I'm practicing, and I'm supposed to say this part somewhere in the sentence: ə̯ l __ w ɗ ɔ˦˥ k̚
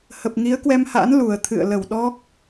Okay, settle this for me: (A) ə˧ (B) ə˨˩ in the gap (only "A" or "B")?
B